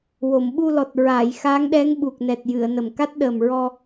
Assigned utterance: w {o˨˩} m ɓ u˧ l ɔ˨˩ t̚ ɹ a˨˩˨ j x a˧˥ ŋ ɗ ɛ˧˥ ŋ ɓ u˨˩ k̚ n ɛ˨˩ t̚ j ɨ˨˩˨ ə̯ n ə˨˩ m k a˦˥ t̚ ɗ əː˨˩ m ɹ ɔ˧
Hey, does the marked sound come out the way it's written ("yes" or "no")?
no